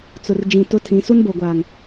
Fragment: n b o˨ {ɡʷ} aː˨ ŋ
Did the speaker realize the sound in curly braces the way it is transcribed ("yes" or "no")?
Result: yes